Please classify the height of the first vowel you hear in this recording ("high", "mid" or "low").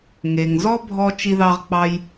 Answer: mid